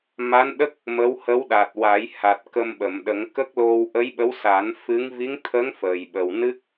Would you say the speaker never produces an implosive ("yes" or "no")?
no